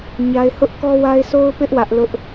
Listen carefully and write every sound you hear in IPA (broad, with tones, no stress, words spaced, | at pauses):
ɲa˦ɪ̯ hʊ˦ʔkɔ˦wa˦ɪ̯ so˦ʊ̯pɪ˦ʔ wä˦ʔlʊ˦ʔ